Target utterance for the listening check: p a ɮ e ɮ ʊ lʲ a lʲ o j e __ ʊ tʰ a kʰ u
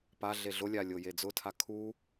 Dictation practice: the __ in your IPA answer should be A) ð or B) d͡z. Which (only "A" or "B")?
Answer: B